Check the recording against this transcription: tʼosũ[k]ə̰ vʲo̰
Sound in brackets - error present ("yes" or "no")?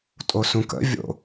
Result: no